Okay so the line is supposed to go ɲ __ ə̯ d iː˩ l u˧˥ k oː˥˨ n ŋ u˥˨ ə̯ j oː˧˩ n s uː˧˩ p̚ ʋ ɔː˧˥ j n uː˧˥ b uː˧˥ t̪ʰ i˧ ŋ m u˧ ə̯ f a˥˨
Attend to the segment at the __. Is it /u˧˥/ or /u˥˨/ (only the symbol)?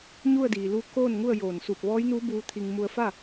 u˥˨